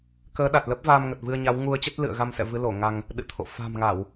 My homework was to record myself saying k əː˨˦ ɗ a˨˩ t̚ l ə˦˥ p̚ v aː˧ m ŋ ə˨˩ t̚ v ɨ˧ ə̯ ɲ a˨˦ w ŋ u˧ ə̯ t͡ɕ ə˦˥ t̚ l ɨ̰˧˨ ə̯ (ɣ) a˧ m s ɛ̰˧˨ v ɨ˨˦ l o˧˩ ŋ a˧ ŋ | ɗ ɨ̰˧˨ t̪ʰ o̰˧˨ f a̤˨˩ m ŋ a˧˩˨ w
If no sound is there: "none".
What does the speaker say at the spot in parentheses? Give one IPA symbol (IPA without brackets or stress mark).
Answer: ɣ